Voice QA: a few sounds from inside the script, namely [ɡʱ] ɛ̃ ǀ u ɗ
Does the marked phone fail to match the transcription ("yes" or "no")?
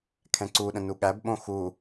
yes